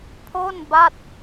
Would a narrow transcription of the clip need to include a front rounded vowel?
no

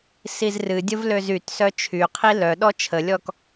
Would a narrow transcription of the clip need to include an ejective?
no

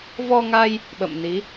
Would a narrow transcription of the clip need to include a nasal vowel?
no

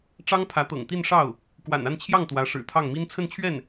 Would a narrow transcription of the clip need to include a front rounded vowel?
no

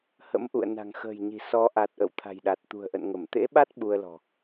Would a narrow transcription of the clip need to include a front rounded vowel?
no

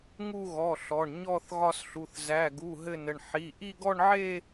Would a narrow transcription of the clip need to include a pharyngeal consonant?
yes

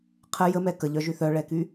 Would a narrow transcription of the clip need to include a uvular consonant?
yes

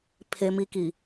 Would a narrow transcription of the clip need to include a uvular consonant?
no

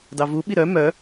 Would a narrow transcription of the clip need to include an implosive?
yes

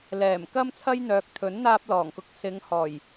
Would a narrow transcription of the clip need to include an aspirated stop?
yes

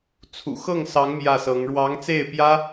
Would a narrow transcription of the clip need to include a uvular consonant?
no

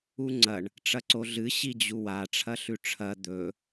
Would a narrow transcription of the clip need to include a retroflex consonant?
yes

